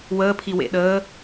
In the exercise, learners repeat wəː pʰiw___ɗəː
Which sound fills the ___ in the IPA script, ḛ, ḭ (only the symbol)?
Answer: ḛ